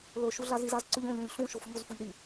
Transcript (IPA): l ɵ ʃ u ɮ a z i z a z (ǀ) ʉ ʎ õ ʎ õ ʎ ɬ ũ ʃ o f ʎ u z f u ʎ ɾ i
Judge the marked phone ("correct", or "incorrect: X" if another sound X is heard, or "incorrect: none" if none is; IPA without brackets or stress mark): correct